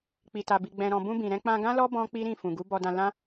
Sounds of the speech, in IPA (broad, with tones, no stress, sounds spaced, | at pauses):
k͡p i˨ t a˨ b i˨ ɡ͡b ɛ̃˨ ɾ ɔ̃˨ b ũ˧ b ĩ˨ ɾ ɛ̃˧ k͡p ã˧ ɡ ã˦ l ɔ˦ b ɔ̃˦ k͡p i˦ ɾ ĩ˦˨ f ũ˨ ɡ u˨˦ b ɔ˧ d ã˧ l ã˦